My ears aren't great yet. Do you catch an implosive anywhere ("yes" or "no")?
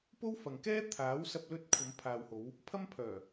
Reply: no